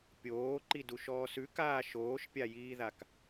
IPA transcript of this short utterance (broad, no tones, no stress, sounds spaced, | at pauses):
pʲ oː ǃ i d u ʃ ɔː s ʉ k aː ʃ oː ʃ pʲ a j iː ð a k